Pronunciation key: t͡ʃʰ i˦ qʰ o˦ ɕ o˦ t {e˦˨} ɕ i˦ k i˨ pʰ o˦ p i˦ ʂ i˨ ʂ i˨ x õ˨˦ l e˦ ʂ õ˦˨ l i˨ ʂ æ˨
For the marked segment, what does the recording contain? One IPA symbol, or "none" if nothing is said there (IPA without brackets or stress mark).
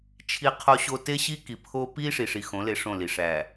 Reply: e˦